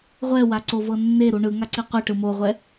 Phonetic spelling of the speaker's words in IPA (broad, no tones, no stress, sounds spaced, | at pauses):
ʁʷ ɛ w a ǀ o v ɤ nː e ɾ u ɳ ɯ ŋ a ǀ i qʷ i ʈ ɯ m o ʁʷ ɛ